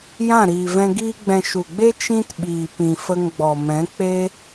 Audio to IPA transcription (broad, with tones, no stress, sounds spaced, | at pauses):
j ã˦˨ ɾ iː˨ v ɛ̃˧ ɡ iː˧ ɡ͡b ɛ̃˨ ʃ u˨ ɡ͡b e˦ t͡ʃ ĩ˦ t ɓ iː˨ p ĩ˨ f ə˧ ŋ ɡ͡b ɔ˨ m ɛ̃˨˦ k͡p e˦